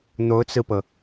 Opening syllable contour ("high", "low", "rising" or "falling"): rising